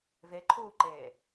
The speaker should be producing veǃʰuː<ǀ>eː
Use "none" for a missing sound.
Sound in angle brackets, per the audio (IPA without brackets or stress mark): ǃ